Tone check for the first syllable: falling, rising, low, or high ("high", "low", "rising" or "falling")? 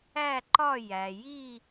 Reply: falling